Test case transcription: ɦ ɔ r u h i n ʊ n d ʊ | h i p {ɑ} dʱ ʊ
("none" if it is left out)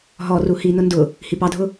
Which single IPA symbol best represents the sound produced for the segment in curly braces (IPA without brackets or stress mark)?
ɑ